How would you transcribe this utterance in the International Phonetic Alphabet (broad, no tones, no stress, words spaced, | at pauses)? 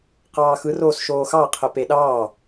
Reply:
qɑːxɯr oːsʃoːxɑ qʰəpeɗɑː